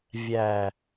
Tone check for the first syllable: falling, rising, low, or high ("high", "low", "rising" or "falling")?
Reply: low